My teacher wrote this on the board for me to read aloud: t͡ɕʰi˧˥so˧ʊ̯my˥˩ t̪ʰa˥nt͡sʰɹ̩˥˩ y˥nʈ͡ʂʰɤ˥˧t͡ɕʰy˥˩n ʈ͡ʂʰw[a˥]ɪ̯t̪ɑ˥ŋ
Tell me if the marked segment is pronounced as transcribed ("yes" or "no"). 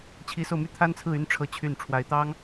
no